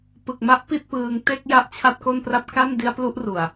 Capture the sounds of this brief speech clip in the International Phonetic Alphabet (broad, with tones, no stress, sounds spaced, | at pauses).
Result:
p ɯ˨˩ k̚ m a˦˥ ʔ p i˥˩ t̚ p ɯː˧ ŋ t e˥˩ k̚ j a˦˥ ʔ t͡ɕʰ a˥˩ t̚ k o˥˩ n p r a˥˩ p̚ k a˥˩ n d i˦˥ a̯ p l u˦˥ ʔ r u˨˩ a̯